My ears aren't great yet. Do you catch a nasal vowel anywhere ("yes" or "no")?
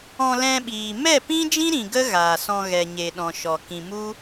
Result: yes